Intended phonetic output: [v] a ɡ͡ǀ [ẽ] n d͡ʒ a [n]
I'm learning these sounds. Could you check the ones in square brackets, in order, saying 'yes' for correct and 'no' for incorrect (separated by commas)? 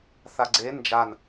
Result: no, no, yes